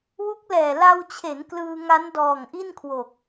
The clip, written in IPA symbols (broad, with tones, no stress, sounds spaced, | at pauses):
w u˦˥ k̚ l ɛː˨˩ l a˧ w t͡ɕʰ e˩˦ n k l ɯː˧ ŋ a˦˥ n d ɔː˨˩ ŋ ʔ i˥˩ n kʰ w o˨˩ k̚